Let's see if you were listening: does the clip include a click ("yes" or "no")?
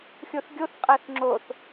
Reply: yes